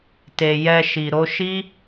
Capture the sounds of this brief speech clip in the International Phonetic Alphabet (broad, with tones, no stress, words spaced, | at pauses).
te˨jɛ˧ʃi˨ ɾo˧ʃi˦